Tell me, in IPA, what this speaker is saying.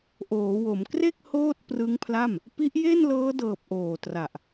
ʔ oː˩˦ w o˩˦ m k r e˥˩ k̚ h oː˥˩ t̚ p r ɯ˦˥ ŋ pʰ l a˥˩ m | p i˦˥ ʔ j e˥˩ n l ɤː˦˥ d ɤː˨˩ p̚ ʔ oː˨˩ t r a˨˩ ʔ

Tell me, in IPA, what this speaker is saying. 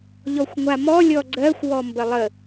ʎ ɔ xʷ ŋʷ a m ɔ lʲ ɔ ɡ͡ǀ ɜ xʷ w ɔ m b ə lˠ ə

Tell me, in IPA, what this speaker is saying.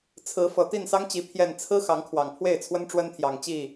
t͡sʰ ɹ̩˨˦ f ɤ˨˩ t̪ i˥˨ n s ɑ˦ ŋ t͡ɕ i˨˦ pʰ j ɛ˨˩ n t͡sʰ ɹ̩˦ x ɑ˨˦ ŋ kʰ w ɑ˨˩ ŋ pʰ w e˥˨ ɪ̯ t͡sʰ w ə˦ n ʈ͡ʂ w ə˦ n t̪ʰ j ɑ˨˩ ŋ t͡ɕ i˥˨

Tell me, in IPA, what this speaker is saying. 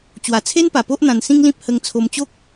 t͡ɕ w a˨˩ t͡sʰ e˦ n p a˨˩ p o˦ ʔ n̪ ã˧ n s ĩ˦ ŋ l ĩ˦ p̚ h ə˧ ŋ t͡sʰ o˧ m t͡ɕ o˦ k̚

